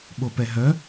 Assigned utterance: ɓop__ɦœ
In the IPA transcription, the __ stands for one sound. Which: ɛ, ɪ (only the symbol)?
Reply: ɛ